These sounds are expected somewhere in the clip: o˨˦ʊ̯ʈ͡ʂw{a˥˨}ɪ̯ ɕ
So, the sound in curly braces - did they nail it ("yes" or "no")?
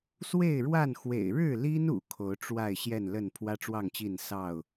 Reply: yes